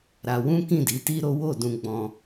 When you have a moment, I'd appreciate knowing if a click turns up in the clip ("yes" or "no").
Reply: no